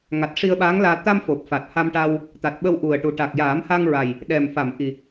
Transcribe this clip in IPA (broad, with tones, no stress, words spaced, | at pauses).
ŋa˨˩t̚ ʂi˧ə̯ɓaː˧˥ŋlaː˧ t̪a˧mfo˨˩p̚fa˨˩t̚ ha˧mʈa˧w | t̪a˨˩t̚ɓə˧w ʔu˨˩ə̯ʈu˨˩ ʈa˨˩k̚jaː˨˩˦mha˧ŋɹa˨˩j | ɗɛ˨˩mfa˨˩˨mʔi˨˩